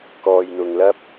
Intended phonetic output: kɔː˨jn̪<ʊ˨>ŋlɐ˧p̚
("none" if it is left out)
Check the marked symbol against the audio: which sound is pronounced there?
ʊ˨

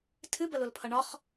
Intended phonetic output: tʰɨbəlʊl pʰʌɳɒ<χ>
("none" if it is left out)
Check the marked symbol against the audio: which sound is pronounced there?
χ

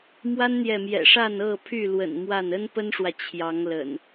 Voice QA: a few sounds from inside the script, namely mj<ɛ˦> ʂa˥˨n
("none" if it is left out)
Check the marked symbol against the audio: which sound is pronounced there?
ɛ̰˨˩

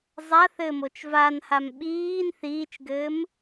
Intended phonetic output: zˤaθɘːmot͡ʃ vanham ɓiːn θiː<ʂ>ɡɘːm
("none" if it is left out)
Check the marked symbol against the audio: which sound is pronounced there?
t͡ʃ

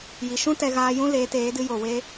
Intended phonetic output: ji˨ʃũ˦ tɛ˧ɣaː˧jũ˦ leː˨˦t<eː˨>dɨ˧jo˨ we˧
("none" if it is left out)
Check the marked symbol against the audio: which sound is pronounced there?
eː˨˦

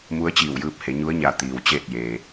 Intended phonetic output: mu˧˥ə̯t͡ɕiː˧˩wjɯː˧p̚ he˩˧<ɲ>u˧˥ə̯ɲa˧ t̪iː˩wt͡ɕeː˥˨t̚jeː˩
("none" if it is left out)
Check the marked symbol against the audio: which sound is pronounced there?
ɲ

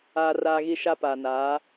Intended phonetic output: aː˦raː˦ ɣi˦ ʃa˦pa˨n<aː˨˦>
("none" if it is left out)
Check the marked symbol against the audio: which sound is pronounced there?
aː˨˦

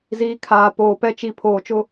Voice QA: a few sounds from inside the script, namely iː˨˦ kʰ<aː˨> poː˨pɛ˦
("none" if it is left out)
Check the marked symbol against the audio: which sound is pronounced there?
aː˨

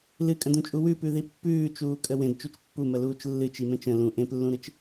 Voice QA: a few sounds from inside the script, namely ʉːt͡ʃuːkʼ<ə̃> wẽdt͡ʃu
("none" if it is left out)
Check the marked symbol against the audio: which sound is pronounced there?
ə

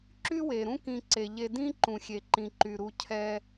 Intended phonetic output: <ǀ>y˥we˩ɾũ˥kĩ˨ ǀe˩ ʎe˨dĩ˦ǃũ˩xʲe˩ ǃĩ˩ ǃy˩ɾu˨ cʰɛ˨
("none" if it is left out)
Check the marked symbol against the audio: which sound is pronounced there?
ǁ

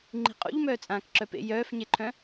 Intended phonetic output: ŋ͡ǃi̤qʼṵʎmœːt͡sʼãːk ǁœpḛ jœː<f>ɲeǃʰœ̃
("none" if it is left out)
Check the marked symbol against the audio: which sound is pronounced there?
f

